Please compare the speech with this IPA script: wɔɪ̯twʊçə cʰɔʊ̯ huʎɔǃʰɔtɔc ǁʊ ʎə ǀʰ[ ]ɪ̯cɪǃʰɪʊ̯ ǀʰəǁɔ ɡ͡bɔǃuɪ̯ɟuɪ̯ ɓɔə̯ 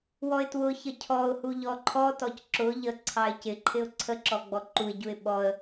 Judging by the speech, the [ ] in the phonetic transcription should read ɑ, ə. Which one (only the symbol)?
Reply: ɑ